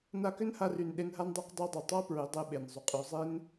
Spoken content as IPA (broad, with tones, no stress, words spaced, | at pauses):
na˧kʏ˦n ha˧ry˨n ɗe˧nɦa˦ndˤa˦q dˤa˦dˤu˨ tˤa˦ pɹʏ˨˦ dˤe˦ɓe˨nzˤy˨qʼy˨˦ zˤe˦n